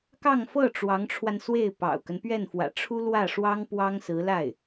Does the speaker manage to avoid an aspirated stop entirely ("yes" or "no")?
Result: no